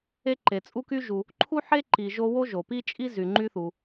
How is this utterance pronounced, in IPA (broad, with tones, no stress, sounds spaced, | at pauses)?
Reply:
e˦ ǃ e˩ t͡sʼ u˦ k y˦ ʒ u˨ | ǃʰ u˥ ħ e˥ ǃ i˨ ʒ o˦ w o˥ ʒ o˩ p i˥ t͡ʃʼ i˥ z y˩ ŋ͡ǃ y˦ θ u˩